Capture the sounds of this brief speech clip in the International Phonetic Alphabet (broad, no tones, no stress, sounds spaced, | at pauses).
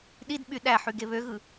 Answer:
ɗ i d ɓ y ɗ æ ħ y ɡ e β ø ɣ ɯ